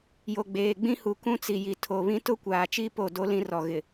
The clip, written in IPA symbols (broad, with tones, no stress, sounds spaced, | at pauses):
j o˨ ɡ͡b eː˨ ɡ͡b ĩ˦ h u˨ k ũ˦ t͡s i˨ j i˨ tʰ o˨ β ĩ˦ t ʊ˦ kʷ aː˨ t͡ʃ i˦ p o˦˨ d o˦ l ĩ˦ r ɔ˨ ɣ ɪ˨